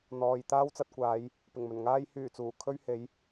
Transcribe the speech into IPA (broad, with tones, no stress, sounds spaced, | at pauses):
n̪ ɔː˨ j t̪ aː˥ w t͡s ɐ˧ t̚ kʷ aː˨˧ j | p ɪ˨˩ ŋ m ɵ˨˩ n ŋ aː˧ j h yː˨˩ t͡s uː˨˩ kʰ ɵ˥ ɥ h e˨˥ j